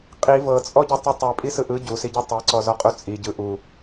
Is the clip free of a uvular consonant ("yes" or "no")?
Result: no